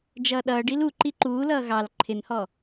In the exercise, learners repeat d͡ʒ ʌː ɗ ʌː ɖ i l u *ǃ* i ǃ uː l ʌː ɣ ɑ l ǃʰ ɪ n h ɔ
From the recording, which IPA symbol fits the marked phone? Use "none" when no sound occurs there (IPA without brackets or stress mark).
ǃ